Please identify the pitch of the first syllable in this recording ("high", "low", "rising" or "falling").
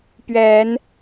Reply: rising